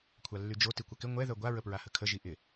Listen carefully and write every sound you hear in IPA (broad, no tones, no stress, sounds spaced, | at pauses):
kʷʰ a lː y d͡ʒ o t i kʷ ɐ k ɪ ŋʷ ɛ ð œ ɡʷ a ɹ ə p ɹ a h ə kʰ ə ʒ i ʔ ɪ